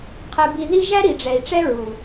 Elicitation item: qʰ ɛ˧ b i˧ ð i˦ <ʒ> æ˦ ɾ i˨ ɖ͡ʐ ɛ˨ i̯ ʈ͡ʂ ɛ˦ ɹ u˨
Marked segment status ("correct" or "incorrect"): correct